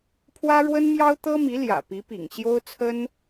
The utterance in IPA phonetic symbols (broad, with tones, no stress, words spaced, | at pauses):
pʰwä˥ɻwə˥nmjɑ˥ʊ̯ t̪ɤ˥mi˧˥ljä̰˨˩ pi˧˥pḭ˨˩ŋɕjo˥ʊ̯ t͡sʰə˥n